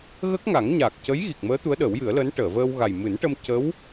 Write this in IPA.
ɣ ə˦˥ k̚ ŋ a˨˩˦ ŋ ɲ a˨˩ k̚ c ə˧˥ j ɣ i˨˩ k̚ m əː˧˥ t̪ u˧˥ ə̯ ɗ ə˨˩˦ w j ɨ˨˩˦ ə̯ l əː˧˥ n ʈ əː˨˩˨ v əː˧ w ɣ a˨˩ j m ɨ˨˩˦ n ʈ ə˧ m c ə˧˥ w

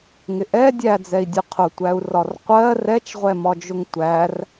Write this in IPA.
ŋ ɪ ʔ ɛ dʲ æ d͡z ɛ i̯ dʲ ʊ qʰ ʊ tʷ æ u̯ r ɒ r qʷ ɜ r ɛ t͡ʃ ʁʷ ɛ m ɒ d͡ʒ ʊ ŋ tʷ æ r

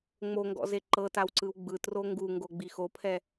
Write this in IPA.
ŋ͡m o ŋ ɡ ɔ̰ z e ǃ ɤ t a w ǀ ɯ w ɡ͡b ɯ t r o ŋ ɡ u ŋ ɡ o ɡ͡b i x o pʰ ɛ

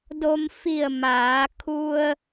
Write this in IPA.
d o˧ m f i˧˩ ə̯ m aː˩˧ kʰ u˧ ə̯

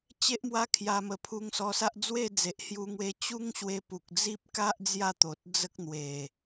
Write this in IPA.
t͡ɕ e˦ ʔ m w a˦ kʰ j a˧ m ə˨˩ pʰ u˧ ŋ s ɔ˧ s a˦ ʔ d͡z w e˥˧ d͡z e˨ ʔ h j u˧ ŋ w e˦ t͡ɕ u˦ ŋ ɕ w e˧ p u˨ k̚ d͡z i˦ p̚ k a˦ ʔ d͡z j a˥˧ t̪ o˨ t̚ d͡z ə˦ k̚ n̪ w e˨˩

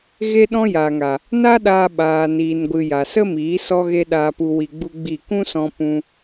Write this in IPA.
ɣ e˦ ɗ ɔ̃˦ j aː˨ ŋ a˨ | n a˦ ɗ aː˧ ɓ aː˧ n iː˧ n ɡʷ ɨ˧ j a˨ s ə˦ m iː˨˦ s ɔ˦ ɣ e˦ ɗ aː˧ p u˧ w i˧ ɡ͡b u˦ ɡ͡b i˦˨ k ũ˦ s ɔ̃˧ p ũ˦

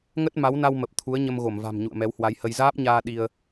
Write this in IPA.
ŋ ə˦˥ t̚ m a˨˦ w n a˧ w m ə˨˩ p̚ t̪ʰ u˨˦ ə̯ ɲ ə˧ m ɣ o˧˩ m v a̤˨˩ m ɲ ṵ˧˨ ə̯ m ɛ˨˦ w h w a˨˦ j h ə˧ j z aː˦˥ p̚ ɲ aː˧ ɗ i˧ ə̯

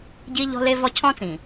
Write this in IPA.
ɟ i˦ ʎ ɔ̤˦ l e˦ v ɔ˦ cʰ ɔ̃˦ t͡s ĩ˨

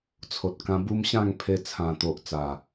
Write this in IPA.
t͡sʰ o˨ t̚ k ã˧ b u˦ m ɕ ã˥˧ ŋ pʰ e˧ t͡sʰ ã˨˩ t̪ o˨ ʔ t͡s a˨˩

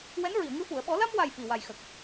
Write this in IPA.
w ɛ˧˥ n ɹ i˨˩˨ ə̯ ŋ ɨ˧ f u˨˩˨ ə̯ ɓ ɔ˨˩˦ l a˧ m w a˨˩ j f i˨˩ w a˨˩ j x ə˨˩ k̚

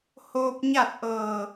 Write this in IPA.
h oː˧ p̚ ɲ a˥˨ t̚ ʔ ɤː˧˩

